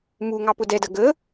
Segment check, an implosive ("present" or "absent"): absent